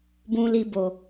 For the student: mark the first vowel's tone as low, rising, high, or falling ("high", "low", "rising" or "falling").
low